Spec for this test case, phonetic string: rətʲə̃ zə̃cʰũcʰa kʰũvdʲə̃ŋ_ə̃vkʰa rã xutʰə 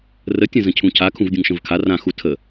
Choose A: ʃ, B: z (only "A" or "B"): A